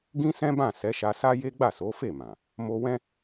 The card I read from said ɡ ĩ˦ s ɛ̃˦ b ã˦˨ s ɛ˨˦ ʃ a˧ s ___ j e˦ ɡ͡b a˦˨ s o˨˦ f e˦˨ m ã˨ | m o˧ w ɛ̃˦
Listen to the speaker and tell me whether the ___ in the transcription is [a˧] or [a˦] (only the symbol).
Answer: a˦